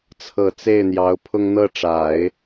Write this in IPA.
t͡sʰ ɤ˨˩ t͡s e˥˩ ɪ̯ n̪ j ɑ˧˥ ʊ̯ pʰ ʊ˥ ŋ n̪ ɤ˥˩ ʈ͡ʂ a˨˩˦ ɪ̯

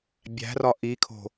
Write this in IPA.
bʲ æ̤ r ɒ ʔ i kʰ o̤

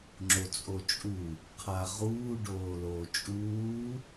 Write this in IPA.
ŋ͡ǁ o t͡sʼ o t͡ʃʼ u | qʰ a ʁ uː ɖ oː l oː t͡ʃʼ uː

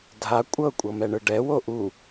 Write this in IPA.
dʱ a kʷʼ ɤ kʷʼ ɤ m ɛ ɳ ɯ ɖ ɛ w o ʔ u

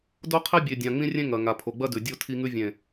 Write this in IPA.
d o˦ qʰ e˦ bʲ e˨ dʲ ã˨ ŋ͡m ĩ˦ rʲ ẽ˦ ŋ ɐ˨ ŋ a˨ pʰ o˨ ɡ͡b ɐ˦ d ʉ˨ dʲ o˦ tʰ i˦ ŋ ʉ˦ vʲ ẽ˨

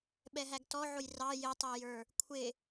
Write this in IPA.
ɓ ɛ ɦ æ ɡ t ɔ ʕ ʊ j r ɑ j ɪ tˤ ə˞ j ə˞ | kʷʰ ɪ

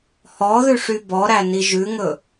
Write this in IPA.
h ɔ ð ʉ ʂ y b ɔ ɾ æ n i ʒ ʉ ŋ ɵ

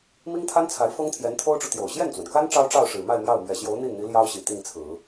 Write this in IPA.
m i˥ ŋ t̪ʰ a˥ n t͡sʰ a˧˥ ɪ̯ f ɤ˥ ŋ t̪ʰ j ɛ˧˥ n t̪ʰ o˥ ʊ̯ ʈ͡ʂ u˨ t̪ j o˨˩ ʊ̯ ɕ j ɛ˥˩ n t͡s w ə˩ n k a˥ n ʈ͡ʂ ɑ˥ ʊ̯ ʈ͡ʂ ɑ˥˩ ʊ̯ ʂ ɻ̩˨˩ m a˥˧ ɪ̯ m j ɑ˥˩ ʊ̯ m ɥ ɛ˨˩ ɕ j o˧˥ ʊ̯ n̪ i˥˩ n n̪ i˧˥ l j ɑ˥ ʊ̯ ɕ i˨˩ t̪ i˥˩ ŋ t͡sʰ ɹ̩˨˩˦

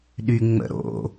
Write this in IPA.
ɗ y ŋ͡m ə̰ ɾ o̰

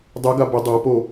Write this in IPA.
dˤ ʉ ɡ a b ʊ dˤ a p o

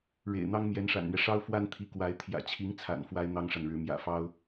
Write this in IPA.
ɻ ḛ˨˩ ɪ̯ n̪ ɑ˥ ŋ m j ɛ˧˥ n ʂ a̰˨˩ n n̪ ɥ ɛ˦ ʂ ɑ˥ ʊ̯ f w a˥ n t̪ʰ i˧˥ k w a˧˥ ɪ̯ t̪ʰ j ä̰˨˩ t͡ɕʰ i˧˥ ŋ t͡sʰ a̰˨˩ n f w a˥ ɪ̯ n̪ ɑ˥ ŋ ʂ a˨ n ɻ ɻ̩˧˥ m j ä̰˨˩ f ɑ˥ ʊ̯

